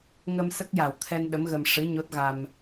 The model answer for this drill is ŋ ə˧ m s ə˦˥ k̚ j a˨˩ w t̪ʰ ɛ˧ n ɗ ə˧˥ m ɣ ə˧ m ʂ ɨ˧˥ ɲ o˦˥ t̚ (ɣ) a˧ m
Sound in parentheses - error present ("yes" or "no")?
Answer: no